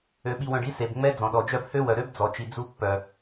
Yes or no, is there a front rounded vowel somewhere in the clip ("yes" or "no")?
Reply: yes